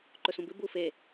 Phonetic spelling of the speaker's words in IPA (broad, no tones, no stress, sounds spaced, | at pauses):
ǃ ɵ s ũ b ɨ b u f e